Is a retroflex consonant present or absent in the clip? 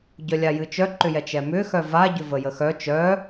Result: absent